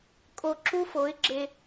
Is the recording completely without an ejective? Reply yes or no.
no